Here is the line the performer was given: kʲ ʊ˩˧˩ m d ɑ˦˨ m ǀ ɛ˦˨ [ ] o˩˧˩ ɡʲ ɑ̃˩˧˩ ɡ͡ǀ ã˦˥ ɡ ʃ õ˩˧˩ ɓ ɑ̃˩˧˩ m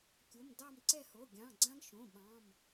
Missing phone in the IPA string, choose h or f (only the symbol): h